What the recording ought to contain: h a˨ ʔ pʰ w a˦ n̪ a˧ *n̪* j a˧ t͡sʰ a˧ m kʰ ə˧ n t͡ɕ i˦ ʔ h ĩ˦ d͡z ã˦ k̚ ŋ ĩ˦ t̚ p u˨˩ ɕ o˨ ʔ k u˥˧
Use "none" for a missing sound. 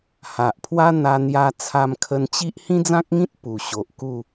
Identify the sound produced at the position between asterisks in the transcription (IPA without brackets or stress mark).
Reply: n̪